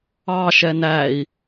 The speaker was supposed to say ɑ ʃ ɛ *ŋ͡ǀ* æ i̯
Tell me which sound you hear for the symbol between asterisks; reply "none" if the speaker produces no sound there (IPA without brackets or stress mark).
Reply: n